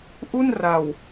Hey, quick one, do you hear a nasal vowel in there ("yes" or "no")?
no